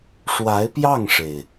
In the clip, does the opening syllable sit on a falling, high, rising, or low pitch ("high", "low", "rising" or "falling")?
rising